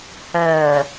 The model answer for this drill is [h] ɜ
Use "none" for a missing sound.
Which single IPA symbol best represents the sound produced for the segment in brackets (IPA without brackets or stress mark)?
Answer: h